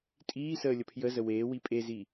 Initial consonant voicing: voiceless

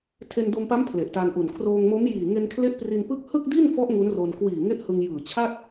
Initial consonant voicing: voiceless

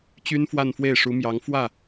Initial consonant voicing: voiceless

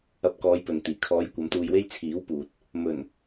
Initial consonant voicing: voiceless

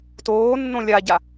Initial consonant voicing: voiceless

